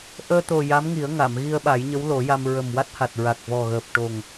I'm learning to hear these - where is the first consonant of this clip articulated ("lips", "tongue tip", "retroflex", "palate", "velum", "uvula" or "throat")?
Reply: throat